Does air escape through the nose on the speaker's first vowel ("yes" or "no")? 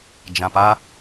yes